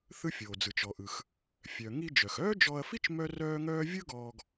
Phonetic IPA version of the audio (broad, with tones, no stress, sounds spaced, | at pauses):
θ ɯ˥ fʲ oː˩ d͡z ɯ˩ t͡ʃ ɔ˩ ʔ ɯ˩ x | fʲ œ˩ ŋ i˧ d͡ʒ œ˩ x œː˥ d͡ʒ ɔ˧ ɐ̯ f i˥ t͡ʃ m œ˥ r œː˥ ŋ œː˥ vʲ ɯ˥ ɡ ɔː˧ ɡ